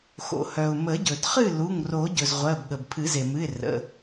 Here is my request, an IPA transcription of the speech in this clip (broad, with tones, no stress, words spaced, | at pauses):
xo̰˩hœ˩ʊ̯ mə˨˩˦ɟɵ˩dχɨ˥˨ lu˩˧˩ŋro˨˩˦ɟɵ˩z ʁʷɜ˩˧˩bɠə˩b pʰɨ˨˩˦ze˩mɨ˩˧˩ɪ̯ rə̰˩˧˩